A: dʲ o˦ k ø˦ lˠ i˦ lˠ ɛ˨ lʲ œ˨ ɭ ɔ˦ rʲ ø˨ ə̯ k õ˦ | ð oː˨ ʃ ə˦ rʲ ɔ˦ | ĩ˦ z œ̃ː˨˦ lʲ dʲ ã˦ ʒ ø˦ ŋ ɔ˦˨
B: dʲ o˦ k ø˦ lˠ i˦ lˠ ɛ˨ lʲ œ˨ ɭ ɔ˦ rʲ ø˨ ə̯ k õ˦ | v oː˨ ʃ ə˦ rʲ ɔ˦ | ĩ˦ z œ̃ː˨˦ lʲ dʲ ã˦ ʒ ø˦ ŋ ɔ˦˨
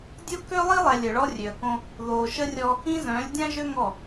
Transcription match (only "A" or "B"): A